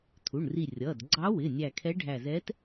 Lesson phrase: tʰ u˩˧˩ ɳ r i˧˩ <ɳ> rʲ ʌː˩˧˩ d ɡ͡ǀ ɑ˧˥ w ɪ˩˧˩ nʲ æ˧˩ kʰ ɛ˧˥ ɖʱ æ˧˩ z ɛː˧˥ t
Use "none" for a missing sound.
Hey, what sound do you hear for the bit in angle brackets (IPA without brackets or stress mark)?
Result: none